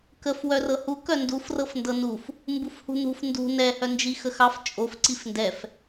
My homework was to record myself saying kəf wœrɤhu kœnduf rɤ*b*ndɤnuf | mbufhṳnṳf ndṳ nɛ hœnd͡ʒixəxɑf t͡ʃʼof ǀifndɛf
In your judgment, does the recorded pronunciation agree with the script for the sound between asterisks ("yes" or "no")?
no